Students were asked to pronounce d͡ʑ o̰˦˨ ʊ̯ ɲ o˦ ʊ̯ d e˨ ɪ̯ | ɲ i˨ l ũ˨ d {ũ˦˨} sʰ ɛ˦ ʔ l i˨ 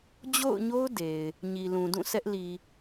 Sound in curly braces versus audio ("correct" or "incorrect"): correct